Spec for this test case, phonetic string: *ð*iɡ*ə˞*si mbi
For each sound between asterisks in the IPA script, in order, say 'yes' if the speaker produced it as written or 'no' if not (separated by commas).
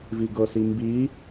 no, no